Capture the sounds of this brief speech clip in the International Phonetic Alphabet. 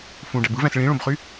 f ũ ɖ æ b ɯ v æ̃ s ɭ ĩ ɭ õ b χ y

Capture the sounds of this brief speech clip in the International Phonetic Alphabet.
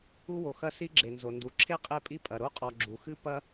u˦ w o˩ x ɐ˦ s i˥ ɡ͡ǁ e˩ n z o˩ n d u˩ ǁʰ e˥ qʼ e˥ pʼ i˥ pʼ ɐ˩ ɾ o˥ qʼ ɔ˨ ɡ͡ǁ u˩ x ɨ˥ p ɐ˥

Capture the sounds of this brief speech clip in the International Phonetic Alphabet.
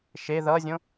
ʃ e ð ʌ zʲ õ

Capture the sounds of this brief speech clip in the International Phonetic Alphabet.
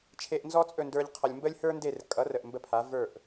t͡ʃʰ e˧ ʔ n z ɔ˥ t͡sʼ ɵ˥˩ n d ə˞˧ ʎ qʰ ʌ˩ lʲ m b ə˥ lʲ h ə˞˥ n d e˥˩ r kʼ ʌ˩˥ r ə˩ ʔ m b ə˥˩ pʰ a˩˥ v ə˞˥˩ ʔ

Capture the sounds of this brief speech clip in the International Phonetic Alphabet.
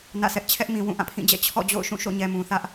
n ä̰˦˨ s ɛ˦ ʔ t͡ɕʰ ɛ˦ ʔ m ĩ˨ w ũ˦˨ ʔ ã˦˨ pʰ ĩ˦˨ d͡ʑ ɛ̰˦˨ t͡ɕʰ ɔ̰˦˨ d͡ʑ o̰˦˨ ʊ̯ ʃ ũ˦˨ ʃ o̰˦˨ ɲ ɛ˨ m ũ˨ θ ä˦ ʔ

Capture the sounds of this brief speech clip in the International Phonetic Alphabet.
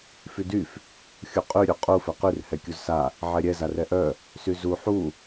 f y d y f | xʲ u qʼ y ɾʲ u qʼ u f ɛ q y r h ɛ kʲ u z s a | ʕ ɛ ɾʲ ɛ z a r ɛ ʔ œ | s y z u ħ u

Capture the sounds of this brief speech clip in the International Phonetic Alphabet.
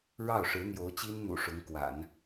ɻ ɑ˥˩ ʊ̯ ʂ ɻ̩˧˥ n̪ j o˧˥ ʊ̯ t͡ɕ i˥ n n̪ ṵ˨˩ ʂ ʊ˧˥ ŋ k w a̰˨˩˦ n

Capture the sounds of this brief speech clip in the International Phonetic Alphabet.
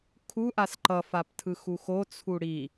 kʰ u ʔ a s ǃ ʌ f a p tʰ ɯ x u x o t͡sʰ u ɽ i

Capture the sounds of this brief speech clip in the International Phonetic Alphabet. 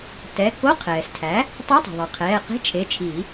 t ɛ˩˧˩ k o˧˥˧ qʰ ɛː˩ s tʰ æ˩˥ | tˤ e˧˥˧ tˤ e̤˩ ðˤ ɛ˩ qʰ ɛː˩˧˩ q e̤˧˥˧ t͡ʃʰ e˩˧˩ t͡ʃʰ i˨˩˦

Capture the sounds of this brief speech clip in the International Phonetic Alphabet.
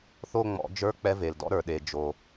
θ o˥˧ ŋ͡m ɔ̰˨˩˦ d͡ʒ ə˞˧˥˧ k͡p ɛ˧ v e˩ l d ɔ̰˥˧ ɾ ə˞˩ ɗ e˩ d͡ʒ o˩

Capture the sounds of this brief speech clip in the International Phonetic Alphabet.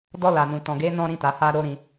d ɔ˧ l a˨ n ũ˨ t ɔ̃˨ ɡ e˨˦ n ɔ̃˦ ɾ ĩ˧ t a˨ h a˧ ɾ o˦ ɾ ĩ˧

